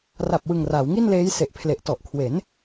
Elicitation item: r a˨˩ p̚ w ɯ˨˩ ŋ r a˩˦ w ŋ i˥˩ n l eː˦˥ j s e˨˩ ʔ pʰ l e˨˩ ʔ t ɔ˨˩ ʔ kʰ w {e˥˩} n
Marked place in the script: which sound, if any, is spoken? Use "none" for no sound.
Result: e˩˦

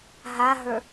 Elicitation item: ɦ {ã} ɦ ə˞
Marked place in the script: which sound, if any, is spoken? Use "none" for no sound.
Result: a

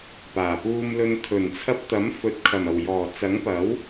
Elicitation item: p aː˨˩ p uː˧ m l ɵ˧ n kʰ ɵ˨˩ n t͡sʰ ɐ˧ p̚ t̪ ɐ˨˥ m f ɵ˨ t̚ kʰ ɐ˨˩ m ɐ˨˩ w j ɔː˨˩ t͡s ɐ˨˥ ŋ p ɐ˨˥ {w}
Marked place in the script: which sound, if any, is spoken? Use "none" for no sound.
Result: w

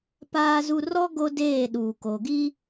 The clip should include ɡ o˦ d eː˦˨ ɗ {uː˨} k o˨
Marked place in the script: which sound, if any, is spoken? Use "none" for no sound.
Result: uː˨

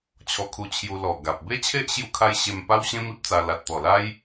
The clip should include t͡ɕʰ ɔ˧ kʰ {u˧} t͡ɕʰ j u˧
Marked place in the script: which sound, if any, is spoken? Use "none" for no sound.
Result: u˧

